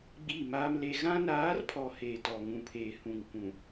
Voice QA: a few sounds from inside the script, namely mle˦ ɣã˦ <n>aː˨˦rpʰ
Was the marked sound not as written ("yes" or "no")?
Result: no